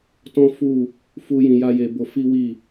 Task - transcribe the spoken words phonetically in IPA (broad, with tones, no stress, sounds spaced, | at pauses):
t ɔ̃˦ f u˦˨ | f u˦ j ĩ˧ j a˦ j e˧ b o˧ f i˦ w i˦˨